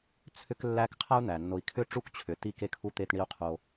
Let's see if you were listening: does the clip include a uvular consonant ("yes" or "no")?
yes